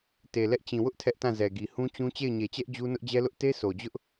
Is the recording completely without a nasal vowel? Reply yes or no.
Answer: no